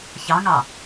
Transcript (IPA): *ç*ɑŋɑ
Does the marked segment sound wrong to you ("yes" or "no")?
no